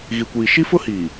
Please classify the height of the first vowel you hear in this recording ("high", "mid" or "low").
high